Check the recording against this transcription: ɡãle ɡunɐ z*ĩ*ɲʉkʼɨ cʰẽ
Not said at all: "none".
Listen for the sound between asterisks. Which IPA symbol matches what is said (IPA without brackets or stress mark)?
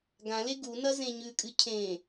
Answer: ẽ